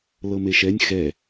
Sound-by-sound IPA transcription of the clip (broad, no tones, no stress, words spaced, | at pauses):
lɤmeʃɛnʲ xɛ